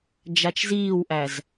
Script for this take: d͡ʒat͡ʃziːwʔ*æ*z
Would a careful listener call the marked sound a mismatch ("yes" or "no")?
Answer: no